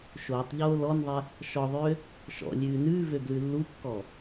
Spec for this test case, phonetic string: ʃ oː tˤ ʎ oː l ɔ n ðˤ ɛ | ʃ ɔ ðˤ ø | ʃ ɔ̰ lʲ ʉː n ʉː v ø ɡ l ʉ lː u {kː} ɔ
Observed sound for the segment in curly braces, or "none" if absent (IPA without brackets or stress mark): kː